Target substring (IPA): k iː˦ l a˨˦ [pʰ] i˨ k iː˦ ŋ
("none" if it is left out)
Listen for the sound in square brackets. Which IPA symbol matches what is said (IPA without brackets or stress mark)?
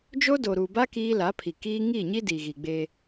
pʰ